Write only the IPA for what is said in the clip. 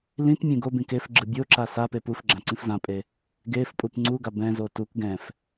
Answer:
lĩt mʲẽɡobĩ kefɡ͡ǁɯ bʲoǁa sa pepufɡ͡ǁã ǀĩfzãpʼe | ɡefpʼup ŋ͡ǀuɡa bɛ̃zo tuk ɡɛ̃f

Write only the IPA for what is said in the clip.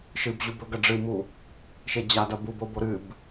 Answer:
ʃɨbʑub ɵɡɐ ɖ͡ʐɨmu | ʃed͡ʑadɐ bub obo ɾɨb

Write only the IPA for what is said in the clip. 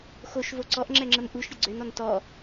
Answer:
xoʃvo ǀɔʔŋ͡ǁɛŋ͡ǁəm ʔuʃɾʲə ɡ͡ǀønɔn tɔ

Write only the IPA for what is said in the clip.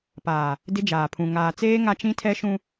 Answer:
paː˨ | dɪ˦ d͡ʒaː˨pʰũ˨ ŋaː˨t͡seː˦ ŋa˦t͡ʃĩ˦tʰɛ˦ʃũ˦

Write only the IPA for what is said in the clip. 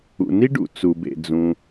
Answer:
ṵ˩ni˥ɖṵ˩ t͡su˩bḛ˩ d͡zũ˩

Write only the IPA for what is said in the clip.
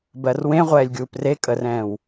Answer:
bɜrwẽʁʷɛːlʲ ɡʲuːpre kʼərɛ̃ːw

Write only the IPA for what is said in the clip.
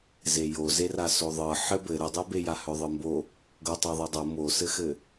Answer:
zejo zerasoðˤɤ ħɘbɘ ɾɘdˤebe jahœðˤɤmbo | ɡɤtˤɤðˤɤdˤɤ mosɘxɘ

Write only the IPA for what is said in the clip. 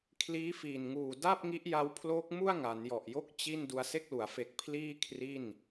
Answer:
kʰliː˦˥ fiː˨˩nŋuː˨˩ da˥˩p̚ŋi˦˥ʔja˦˥w pʰloː˦˥k̚mu˥˩a̯ ŋa˩˦njɔ˨˩ʔjo˥˩k̚ t͡ɕi˥˩n du˧a̯se˥˩k̚lu˩˦a̯ fe˨˩k̚ pʰliː˥˩ kʰri˥˩n

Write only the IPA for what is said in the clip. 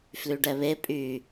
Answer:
flyɖɛβe pʼy

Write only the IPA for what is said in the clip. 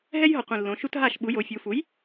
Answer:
ɦɛ˦jɦɔ˨˩ qʷĩ˨˩lːõ˩˧ ʃu˦tɦa˥˩ʃɓu˩˥ jo˩˧fʲu˩˧fu˩˥j

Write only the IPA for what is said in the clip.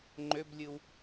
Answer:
ŋ͡ǃøblʲɯw

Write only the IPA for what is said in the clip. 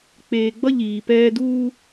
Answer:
k͡peː˨ɡ͡bʌ˦ ʎiː˨pɛː˦ duː˦

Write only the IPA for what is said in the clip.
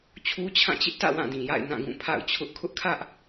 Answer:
t͡ɕʰu˦t͡ɕʰã˦˨t͡ɕɪ˦ʔtä̰˦˨ wã˦˨dĩ˨ ja̰˦˨ɪ̯nã˦˨ɡũ˦˨ pʰa̰˦˨ʊ̯t͡ɕʰʊ˦ʔ kʰʊ˦ʔkʰä˦ʔ

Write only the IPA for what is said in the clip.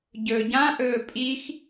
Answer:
ɟɵ ɟãʔɵː pʼix

